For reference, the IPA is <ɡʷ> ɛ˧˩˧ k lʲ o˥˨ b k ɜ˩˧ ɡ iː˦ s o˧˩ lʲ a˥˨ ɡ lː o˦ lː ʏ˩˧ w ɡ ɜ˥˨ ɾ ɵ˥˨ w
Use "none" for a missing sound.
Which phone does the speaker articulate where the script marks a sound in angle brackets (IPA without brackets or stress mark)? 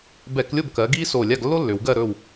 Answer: b